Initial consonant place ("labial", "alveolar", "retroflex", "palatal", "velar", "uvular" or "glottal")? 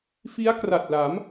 labial